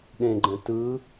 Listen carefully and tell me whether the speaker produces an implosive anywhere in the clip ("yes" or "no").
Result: yes